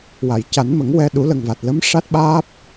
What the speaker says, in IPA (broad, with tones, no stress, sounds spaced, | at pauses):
w a˨˩˨ j c a˨˩˦ n m ə˨˩˦ ŋ w ɛ˧ ɗ u˨˩˦ l ə˨˩ ŋ v a˨˩ t̚ l ə˧˥ m ʂ a˦˥ t̚ ɓ aː˦˥ p̚